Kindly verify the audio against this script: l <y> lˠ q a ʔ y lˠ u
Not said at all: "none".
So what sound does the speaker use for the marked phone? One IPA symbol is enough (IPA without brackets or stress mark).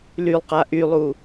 y